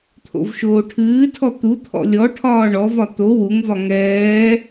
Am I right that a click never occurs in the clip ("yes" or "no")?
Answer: yes